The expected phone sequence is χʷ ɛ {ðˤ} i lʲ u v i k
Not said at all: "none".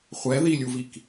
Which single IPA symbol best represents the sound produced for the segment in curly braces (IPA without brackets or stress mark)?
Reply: ð